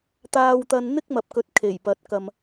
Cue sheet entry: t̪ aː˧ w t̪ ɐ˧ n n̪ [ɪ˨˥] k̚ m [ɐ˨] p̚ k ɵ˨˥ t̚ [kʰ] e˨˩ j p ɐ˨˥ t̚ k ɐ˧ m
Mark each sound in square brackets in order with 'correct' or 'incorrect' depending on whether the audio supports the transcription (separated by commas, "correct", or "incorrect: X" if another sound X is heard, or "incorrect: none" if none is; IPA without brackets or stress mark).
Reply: incorrect: ɪ˥, correct, correct